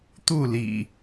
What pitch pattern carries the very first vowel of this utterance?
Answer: falling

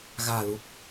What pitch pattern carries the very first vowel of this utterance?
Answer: low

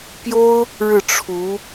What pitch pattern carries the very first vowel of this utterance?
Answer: high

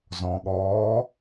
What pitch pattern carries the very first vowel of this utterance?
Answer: low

